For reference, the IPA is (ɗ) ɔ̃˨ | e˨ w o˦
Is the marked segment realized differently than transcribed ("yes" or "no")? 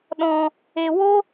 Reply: no